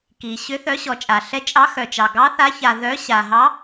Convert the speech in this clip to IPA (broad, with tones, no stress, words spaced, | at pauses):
ki˩ ɕʏ˨˦θœ˨˦ɕɔ˩t͡ʃʼa˩ ɬɛ˨˦t͡ʃʼɑ˨˦xœ˩t͡ʃɑ˩ ɡɑ˨˦θa˨˦ça˩ ðœ˨˦ ɕa˩ɦɑ˨˦